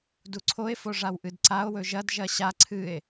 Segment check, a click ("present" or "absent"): present